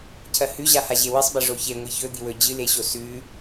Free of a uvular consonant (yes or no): yes